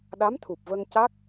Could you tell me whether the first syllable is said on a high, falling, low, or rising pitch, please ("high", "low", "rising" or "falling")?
rising